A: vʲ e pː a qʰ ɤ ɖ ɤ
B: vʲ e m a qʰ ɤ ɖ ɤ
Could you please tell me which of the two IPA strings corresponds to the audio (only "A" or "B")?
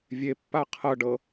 A